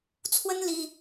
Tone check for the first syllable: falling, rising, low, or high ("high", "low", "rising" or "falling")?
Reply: high